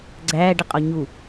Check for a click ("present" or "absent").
present